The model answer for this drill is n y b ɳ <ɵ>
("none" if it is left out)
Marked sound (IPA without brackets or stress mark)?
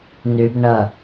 ə